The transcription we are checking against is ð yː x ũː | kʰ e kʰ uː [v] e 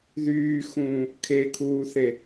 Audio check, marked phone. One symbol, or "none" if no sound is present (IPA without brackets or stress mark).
θ